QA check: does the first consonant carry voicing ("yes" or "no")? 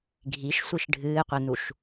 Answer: yes